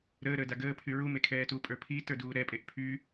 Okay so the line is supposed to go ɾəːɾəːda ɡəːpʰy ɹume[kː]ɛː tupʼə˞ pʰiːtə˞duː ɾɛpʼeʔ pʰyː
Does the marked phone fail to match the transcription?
yes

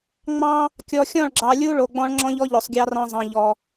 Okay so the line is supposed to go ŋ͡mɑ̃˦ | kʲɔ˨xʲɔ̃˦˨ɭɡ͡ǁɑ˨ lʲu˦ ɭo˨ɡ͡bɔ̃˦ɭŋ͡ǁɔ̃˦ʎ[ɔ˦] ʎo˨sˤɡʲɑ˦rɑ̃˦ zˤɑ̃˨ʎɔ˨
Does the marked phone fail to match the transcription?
no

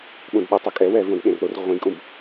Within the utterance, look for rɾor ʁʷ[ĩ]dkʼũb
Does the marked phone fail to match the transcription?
no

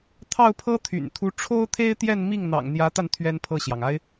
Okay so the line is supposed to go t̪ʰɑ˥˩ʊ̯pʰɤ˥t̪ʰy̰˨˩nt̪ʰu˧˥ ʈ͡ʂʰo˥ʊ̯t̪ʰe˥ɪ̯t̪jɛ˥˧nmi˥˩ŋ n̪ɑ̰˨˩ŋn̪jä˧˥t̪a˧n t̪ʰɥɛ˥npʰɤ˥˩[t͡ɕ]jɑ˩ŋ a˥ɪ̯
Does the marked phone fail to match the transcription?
yes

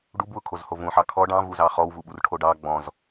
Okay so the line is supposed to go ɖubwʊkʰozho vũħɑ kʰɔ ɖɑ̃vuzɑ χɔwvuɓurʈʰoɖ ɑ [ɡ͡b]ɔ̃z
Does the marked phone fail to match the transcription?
no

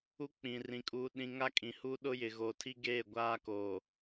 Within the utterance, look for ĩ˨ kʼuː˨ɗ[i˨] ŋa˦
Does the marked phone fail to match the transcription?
yes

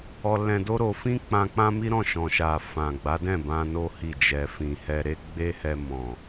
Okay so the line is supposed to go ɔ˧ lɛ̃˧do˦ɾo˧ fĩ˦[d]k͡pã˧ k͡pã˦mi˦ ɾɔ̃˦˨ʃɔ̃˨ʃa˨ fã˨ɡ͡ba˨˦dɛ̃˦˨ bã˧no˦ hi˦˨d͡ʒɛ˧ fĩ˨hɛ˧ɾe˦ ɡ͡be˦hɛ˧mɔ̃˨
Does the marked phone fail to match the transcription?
yes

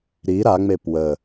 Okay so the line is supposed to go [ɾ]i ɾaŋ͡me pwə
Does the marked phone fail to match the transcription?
no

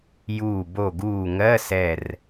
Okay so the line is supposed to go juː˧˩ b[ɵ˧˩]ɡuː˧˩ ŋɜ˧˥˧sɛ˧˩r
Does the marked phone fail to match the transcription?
yes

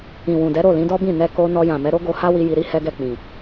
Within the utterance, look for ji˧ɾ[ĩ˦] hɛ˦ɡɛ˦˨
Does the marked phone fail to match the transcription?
yes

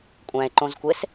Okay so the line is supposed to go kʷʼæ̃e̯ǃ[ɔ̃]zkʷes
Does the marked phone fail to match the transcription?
yes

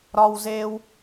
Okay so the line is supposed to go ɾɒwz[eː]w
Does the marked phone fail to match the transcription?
no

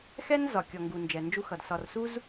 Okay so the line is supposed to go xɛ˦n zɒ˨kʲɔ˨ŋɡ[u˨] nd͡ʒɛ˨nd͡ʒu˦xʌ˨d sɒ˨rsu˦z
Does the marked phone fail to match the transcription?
no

